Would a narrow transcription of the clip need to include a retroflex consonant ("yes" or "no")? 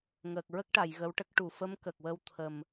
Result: yes